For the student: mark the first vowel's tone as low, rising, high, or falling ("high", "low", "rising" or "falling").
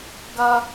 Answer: high